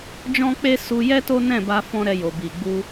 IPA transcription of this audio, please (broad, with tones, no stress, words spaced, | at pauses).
d͡ʒɔ̃˦k͡pe˦ su˧jɛ˦ to˦ nɛ̃˦˨ba˧ fɔ̃˦ɾɛ˧ jo˨bi˨ɡ͡bu˧